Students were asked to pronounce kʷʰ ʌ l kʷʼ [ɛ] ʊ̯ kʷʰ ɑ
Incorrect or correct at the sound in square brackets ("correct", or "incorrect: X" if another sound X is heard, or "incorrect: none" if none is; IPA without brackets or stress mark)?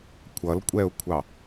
correct